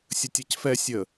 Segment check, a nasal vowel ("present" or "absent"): absent